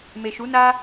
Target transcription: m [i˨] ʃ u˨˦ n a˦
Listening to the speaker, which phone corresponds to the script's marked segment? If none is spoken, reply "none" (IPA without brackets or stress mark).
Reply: e˨